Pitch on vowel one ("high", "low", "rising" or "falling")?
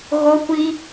high